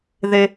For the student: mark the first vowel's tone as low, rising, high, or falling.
high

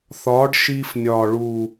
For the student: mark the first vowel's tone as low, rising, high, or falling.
rising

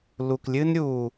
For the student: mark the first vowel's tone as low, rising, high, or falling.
low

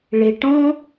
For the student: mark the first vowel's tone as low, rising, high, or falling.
low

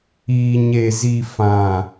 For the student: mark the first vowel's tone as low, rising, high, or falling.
low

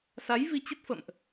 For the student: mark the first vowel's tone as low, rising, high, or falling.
rising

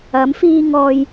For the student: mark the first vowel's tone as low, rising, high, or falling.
rising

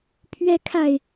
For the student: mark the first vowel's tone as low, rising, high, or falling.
rising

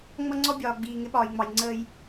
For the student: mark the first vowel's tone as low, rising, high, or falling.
high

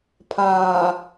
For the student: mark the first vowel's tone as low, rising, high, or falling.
low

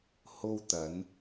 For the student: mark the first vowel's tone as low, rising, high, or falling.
high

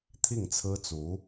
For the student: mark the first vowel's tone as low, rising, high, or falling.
falling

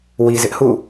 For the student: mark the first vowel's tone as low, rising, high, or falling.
low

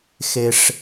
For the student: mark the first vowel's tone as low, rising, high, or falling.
low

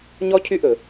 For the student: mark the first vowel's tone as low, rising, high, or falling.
high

